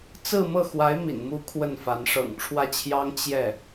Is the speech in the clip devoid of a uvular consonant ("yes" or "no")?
yes